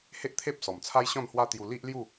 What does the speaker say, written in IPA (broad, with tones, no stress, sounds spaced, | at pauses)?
h e˦ ʔ t̪ʰ e˦ p̚ s ɔ˨˩ m t͡sʰ a˦ j ɕ ɔ̃˥˧ n h w a˦ t̪ j u˧ l i˦ ʔ l j u˥˧